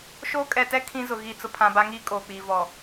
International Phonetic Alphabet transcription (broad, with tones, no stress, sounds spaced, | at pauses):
ʃ oː˦ kʼ ɛ˨ t ɛ˦ kʰ ĩ˦ z ʊ˨ ɣ i˦˨ t͡s ʊ˦ pʰ ã˨ b a˦ ŋ iː˦ kʼ oː˨ k͡p iː˨ v ɔ˨